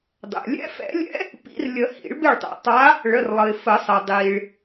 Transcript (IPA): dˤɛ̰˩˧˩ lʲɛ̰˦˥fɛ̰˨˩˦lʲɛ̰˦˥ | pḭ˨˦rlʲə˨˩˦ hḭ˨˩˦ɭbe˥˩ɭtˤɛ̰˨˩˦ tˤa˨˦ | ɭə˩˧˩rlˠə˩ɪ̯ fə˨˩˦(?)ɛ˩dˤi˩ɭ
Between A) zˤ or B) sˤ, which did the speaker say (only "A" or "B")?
B